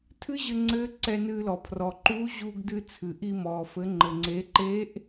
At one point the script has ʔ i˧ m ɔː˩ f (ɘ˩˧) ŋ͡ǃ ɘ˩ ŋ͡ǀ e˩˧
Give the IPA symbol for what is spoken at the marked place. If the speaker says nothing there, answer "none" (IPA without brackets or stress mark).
ɘ˩˧